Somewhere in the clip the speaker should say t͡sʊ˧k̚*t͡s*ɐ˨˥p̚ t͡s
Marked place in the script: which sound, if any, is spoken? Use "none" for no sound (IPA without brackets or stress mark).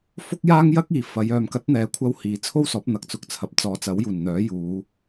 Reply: t͡sʰ